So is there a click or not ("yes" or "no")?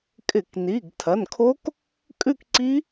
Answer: yes